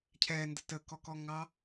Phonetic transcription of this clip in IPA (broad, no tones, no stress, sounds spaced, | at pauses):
cʰ ɛ n d ə t ə k ɔ k ɔ ŋ ɑ